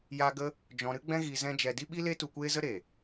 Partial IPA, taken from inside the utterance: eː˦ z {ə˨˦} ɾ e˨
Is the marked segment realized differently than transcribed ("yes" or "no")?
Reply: yes